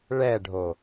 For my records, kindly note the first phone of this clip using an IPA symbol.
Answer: ɭ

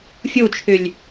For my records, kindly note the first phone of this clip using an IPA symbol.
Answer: fʲ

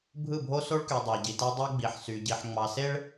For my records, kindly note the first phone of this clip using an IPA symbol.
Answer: bʱ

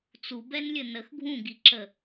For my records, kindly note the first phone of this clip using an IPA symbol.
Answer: t͡s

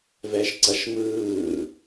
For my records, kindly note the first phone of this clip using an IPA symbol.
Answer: v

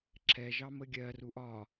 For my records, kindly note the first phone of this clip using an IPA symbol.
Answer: ǁʰ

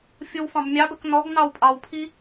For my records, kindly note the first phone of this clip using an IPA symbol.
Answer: fʲ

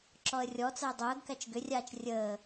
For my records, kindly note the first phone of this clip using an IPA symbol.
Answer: ǁ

